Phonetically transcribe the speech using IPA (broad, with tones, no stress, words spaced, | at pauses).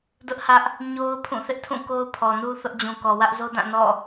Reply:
dʊ˦ʔhä˦ʔ | ɲo˦ʊ̯ pʰũ˦˨θɪ˦ʔtʰũ˦˨ko˦ʊ̯ pʰɔ˨nu˦ θʊ˦ʔd͡ʑũ˨ kɔ˨ wä˦ʔzo˦dã˦˨ nɔ̰˦˨